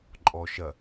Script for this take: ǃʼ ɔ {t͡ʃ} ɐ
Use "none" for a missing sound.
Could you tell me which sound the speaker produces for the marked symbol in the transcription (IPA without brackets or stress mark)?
ʃ